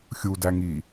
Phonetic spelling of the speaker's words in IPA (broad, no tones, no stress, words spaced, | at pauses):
xʲudæŋi